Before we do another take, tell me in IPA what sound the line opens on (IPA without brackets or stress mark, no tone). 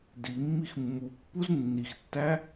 d